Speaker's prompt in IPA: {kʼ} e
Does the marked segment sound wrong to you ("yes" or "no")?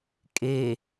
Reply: no